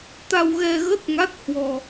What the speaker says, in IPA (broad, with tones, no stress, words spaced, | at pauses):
t̪a˧wɣɛ˧ɣə˦˥t̚ŋa˦˥t̚ hwɔ˧